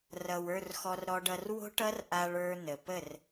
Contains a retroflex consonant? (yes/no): yes